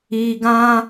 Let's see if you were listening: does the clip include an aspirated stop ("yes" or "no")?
no